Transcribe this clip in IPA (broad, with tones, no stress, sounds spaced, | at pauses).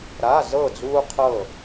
ɾ a˧˥˧ z ɤ˥˨ d͡z uː˥ qʰ ɤ˥˨